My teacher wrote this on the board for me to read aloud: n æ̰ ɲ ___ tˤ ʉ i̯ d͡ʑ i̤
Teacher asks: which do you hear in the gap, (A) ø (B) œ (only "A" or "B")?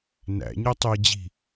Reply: B